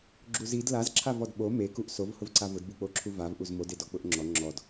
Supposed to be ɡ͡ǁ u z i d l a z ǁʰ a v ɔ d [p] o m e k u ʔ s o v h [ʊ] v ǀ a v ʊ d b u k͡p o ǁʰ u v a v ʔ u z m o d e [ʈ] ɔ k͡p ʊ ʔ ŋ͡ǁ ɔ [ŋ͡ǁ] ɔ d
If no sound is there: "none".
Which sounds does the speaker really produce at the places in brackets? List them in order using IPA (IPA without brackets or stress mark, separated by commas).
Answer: ɓ, ʊ, d, ŋ͡ǁ